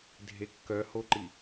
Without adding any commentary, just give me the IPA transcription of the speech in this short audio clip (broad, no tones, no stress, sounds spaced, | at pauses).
dʱ e kː œ h o ǃ i